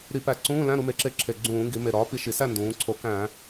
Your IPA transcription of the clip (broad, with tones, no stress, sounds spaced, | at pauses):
ɾ i˧˩˧ p æ˧˩˧ ǀ ũː˧˥˧ l æ̃˧˥˧ ɾ u˩˧ m e˩˧ ǁ e˧˩˧ ǁʰ e˨˩ ɡ͡ǀ ũː˧˩˧ ŋ ɡ i˩˧ m e˨˩ ɾ ɒː˩˥ p i˩˥ ʃ i˩˧ s æ˥˨ n d ũː˩˧ ǀʰ o˩˥ k æ̃ː˧˩˧